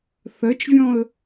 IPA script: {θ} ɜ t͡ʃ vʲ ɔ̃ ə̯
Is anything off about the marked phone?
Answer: no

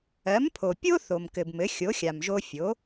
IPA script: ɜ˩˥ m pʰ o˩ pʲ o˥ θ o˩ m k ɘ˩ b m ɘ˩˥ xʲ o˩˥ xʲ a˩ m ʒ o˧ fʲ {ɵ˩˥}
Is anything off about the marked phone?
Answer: yes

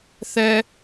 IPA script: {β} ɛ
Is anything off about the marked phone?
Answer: yes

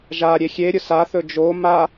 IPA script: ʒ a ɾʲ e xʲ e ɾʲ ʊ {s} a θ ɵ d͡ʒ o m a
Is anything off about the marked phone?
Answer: no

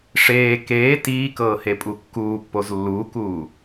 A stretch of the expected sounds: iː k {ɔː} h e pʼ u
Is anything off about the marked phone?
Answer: yes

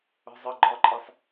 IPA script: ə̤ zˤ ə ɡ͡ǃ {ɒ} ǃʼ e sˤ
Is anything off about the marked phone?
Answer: no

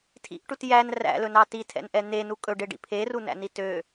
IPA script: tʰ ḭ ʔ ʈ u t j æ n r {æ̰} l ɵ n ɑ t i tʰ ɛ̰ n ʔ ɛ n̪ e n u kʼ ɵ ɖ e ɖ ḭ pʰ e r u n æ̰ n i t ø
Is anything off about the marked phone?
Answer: no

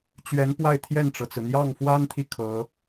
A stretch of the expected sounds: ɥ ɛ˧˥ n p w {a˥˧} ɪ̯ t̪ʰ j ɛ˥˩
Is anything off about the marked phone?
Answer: no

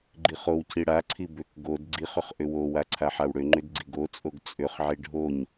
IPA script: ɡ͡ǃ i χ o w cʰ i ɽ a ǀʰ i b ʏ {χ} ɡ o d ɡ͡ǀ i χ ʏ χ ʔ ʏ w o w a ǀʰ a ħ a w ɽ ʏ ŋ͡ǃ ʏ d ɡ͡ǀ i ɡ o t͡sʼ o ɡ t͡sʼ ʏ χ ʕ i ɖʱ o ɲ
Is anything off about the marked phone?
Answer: yes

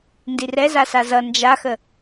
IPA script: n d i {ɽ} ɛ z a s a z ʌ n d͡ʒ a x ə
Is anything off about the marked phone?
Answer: yes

